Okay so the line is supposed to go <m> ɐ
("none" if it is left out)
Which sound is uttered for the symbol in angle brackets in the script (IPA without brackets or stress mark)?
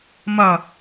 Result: m